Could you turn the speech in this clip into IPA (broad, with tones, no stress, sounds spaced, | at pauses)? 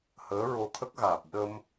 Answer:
h əː˧˥ ɹ o˧ t̪ʰ ə˦˥ k̚ ɣ aː˨˩ p̚ ɗ ə˧ m